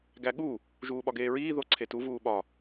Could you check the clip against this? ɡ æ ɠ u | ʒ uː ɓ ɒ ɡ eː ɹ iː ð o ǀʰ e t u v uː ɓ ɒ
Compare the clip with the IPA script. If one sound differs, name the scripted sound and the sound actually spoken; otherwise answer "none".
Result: none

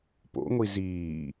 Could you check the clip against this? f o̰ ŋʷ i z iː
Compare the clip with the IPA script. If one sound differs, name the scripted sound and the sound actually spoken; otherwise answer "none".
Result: f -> p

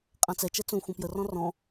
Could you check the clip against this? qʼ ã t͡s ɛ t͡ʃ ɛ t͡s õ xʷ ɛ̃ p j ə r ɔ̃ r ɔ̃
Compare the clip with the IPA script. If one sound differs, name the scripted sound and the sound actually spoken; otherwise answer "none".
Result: none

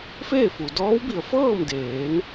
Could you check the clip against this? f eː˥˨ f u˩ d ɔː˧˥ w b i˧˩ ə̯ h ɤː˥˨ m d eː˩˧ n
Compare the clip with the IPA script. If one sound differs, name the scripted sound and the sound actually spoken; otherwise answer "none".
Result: h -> f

